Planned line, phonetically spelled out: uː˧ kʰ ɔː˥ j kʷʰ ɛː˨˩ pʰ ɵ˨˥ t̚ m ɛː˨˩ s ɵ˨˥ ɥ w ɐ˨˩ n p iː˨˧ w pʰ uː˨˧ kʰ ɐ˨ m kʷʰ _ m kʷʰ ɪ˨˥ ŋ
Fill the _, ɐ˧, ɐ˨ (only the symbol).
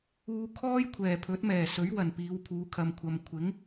ɐ˨